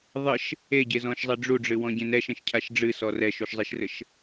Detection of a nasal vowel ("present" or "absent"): present